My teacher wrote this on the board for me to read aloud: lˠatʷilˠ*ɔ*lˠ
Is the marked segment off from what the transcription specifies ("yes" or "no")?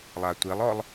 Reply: no